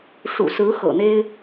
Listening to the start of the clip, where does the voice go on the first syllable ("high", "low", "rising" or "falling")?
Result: low